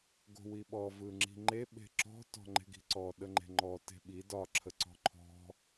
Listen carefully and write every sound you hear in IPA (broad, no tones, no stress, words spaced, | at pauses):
ɡo̤wiɓɔ vɯŋ͡ǁi̤ŋ͡ǃe ɓe̤ǁɔ̤ tɔ̤ŋ͡ǃe̤ɡi̤ǀɔ ɗəŋ͡ǃe̤ŋ͡ǃɔ te̤ɓi dɒ ǁʰəǀɔ̤ǃʰɔ̤